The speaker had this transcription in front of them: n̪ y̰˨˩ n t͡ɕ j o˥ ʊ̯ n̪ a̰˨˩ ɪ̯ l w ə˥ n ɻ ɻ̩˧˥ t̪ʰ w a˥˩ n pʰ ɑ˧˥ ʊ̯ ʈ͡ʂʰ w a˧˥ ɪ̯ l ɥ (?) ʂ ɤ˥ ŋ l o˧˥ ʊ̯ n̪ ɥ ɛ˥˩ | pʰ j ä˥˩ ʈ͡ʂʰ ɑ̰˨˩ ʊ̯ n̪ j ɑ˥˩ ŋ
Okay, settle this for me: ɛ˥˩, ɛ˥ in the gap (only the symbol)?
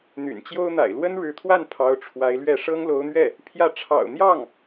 ɛ˥˩